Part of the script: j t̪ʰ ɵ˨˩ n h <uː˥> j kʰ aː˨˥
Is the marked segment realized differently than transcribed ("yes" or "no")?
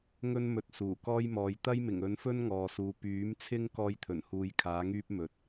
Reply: yes